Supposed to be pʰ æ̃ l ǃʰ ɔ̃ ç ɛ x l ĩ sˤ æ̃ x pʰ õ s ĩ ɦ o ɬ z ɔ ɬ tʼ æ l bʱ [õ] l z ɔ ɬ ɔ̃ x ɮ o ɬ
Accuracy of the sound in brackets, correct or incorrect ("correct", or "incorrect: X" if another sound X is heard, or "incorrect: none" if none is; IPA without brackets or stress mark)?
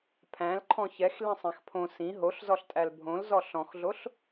correct